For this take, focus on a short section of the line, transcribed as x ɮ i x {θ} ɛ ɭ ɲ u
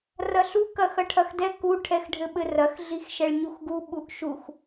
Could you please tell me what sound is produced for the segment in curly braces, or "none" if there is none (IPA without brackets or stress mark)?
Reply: ʃ